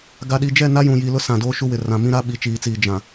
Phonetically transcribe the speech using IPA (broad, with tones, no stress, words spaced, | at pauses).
ɡa˨ɗi˨d͡ʒɛ˦˨na˦ jũ˨jiː˨lʊ˦ sã˨doː˦ʃu˦wɪ˨ rã˨mĩ˦ ɾa˦ɓi˨t͡ʃiː˨t͡siː˨ d͡ʒã˨